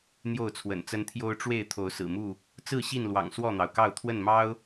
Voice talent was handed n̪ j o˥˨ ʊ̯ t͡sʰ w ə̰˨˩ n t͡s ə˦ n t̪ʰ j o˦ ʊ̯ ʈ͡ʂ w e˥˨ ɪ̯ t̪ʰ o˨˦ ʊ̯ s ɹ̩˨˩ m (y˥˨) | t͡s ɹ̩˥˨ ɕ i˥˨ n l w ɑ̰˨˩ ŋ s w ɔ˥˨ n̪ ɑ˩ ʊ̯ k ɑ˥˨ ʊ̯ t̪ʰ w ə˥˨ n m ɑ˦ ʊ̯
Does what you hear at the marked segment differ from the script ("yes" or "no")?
yes